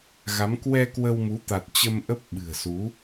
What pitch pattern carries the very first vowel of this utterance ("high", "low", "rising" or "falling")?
rising